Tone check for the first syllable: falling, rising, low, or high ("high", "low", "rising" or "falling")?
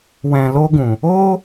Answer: low